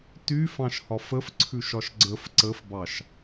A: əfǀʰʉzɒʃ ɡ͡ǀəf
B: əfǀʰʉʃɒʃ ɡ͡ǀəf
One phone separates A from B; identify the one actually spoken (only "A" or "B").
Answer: B